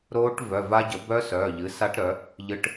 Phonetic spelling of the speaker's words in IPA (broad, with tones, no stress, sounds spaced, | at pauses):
ɾ oː˦˥ ʈ v œ˩˧˩ v a˦˥ ɟ ə˩˥ b œ˦˥ s œː˩˧˩ ʎ ɨ˩˥ s a˦˥ ʈ ɾ œ˩˥ | ʎ ɨ˦˥ ʈ